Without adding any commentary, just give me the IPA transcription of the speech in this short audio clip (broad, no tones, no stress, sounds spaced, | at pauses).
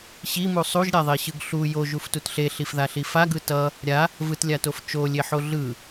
ɕ i m u sˤ u ʒ ɾʲ a ðˤ e ɕ ɯ ɡ ɬ u j o ʒ u f t u t ɬ e ɬ i f ð a ɬ i f a ɡ ɯ t ʌ | ɾʲ a | v ɯ t lʲ a t o f t͡ʃ o lʲ e ħ o ɮ ɯ